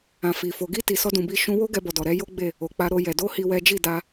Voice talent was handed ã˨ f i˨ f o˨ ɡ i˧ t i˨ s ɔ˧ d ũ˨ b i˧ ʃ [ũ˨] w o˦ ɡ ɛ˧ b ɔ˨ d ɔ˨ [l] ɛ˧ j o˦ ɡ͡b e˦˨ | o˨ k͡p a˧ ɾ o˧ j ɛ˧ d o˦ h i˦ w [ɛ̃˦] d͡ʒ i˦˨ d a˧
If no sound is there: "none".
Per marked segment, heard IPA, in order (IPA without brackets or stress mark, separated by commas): ũ˧, ɾ, ɛ˦